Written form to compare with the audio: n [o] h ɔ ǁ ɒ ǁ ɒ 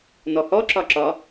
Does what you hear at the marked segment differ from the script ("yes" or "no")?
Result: yes